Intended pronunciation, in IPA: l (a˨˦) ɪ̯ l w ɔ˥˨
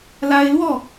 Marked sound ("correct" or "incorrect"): incorrect